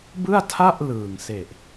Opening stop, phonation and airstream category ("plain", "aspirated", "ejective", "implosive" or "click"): plain